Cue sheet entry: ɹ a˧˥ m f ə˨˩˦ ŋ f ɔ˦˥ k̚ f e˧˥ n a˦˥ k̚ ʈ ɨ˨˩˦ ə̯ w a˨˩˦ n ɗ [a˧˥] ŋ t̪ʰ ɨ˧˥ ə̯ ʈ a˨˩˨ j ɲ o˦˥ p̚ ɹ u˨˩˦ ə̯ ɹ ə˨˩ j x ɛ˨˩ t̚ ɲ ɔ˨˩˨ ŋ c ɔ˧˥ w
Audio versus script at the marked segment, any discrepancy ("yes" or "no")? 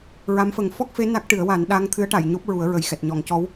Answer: no